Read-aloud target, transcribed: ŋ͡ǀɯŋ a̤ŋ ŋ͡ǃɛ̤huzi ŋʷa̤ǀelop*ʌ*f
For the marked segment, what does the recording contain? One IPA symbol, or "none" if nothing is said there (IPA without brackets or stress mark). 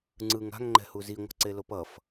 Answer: ʌ